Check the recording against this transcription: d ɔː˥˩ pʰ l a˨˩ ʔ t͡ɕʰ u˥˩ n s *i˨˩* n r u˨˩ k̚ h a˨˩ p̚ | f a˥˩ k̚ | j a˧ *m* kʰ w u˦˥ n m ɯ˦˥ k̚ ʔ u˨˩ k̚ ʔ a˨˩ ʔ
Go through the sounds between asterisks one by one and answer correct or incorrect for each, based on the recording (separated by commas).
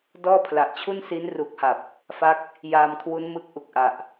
incorrect, correct